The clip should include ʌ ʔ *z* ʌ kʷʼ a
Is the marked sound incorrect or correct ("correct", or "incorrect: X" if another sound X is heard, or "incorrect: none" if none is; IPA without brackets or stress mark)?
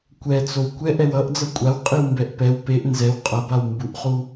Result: incorrect: d͡z